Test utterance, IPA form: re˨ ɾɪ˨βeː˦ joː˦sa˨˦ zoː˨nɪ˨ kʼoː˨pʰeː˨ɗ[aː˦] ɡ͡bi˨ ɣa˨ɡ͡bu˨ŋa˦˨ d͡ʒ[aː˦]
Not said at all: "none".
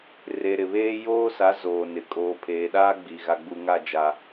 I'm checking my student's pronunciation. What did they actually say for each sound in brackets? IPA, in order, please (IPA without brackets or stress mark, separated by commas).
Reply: aː˦, a˦